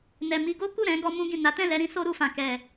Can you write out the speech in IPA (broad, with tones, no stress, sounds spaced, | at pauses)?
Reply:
n ɛ˨ m i˧ ɡ o˦ k u˦˨ ɾ ɛ̃˨˦ ɡ ɔ˧ m ũ˧ ɡ ĩ˨ n a˨˦ t ɛ̃˦˨ l ɛ˧ ɾ ĩ˦ s o˦ ɾ u˧ f ã˨ k ɛ˨